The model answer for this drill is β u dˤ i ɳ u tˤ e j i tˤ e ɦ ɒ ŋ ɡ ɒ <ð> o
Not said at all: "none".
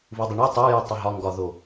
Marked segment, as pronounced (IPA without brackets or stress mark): ð